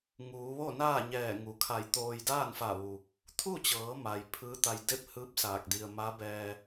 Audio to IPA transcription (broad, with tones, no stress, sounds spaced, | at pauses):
ŋ uː˩˧ ʋ o˥˨ n aː˥˨ ɲ ɛː˧˩ ŋ u˩ kʰ a˧˩ j t̪ oː˧ j d aː˥˨ n f a˧˩ ʋ u˩ | t̪ʰ u˥˨ t͡ɕ ɤː˩˧ m a˩ j pʰ ɯː˧˥ t̪ a˧ j d e˥˨ p̚ h ɯː˧˥ p̚ s aː˧˩ k̚ d i˧ ə̯ m a˧˥ b ɛː˧